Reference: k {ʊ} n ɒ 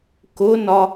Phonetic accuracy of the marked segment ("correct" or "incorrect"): correct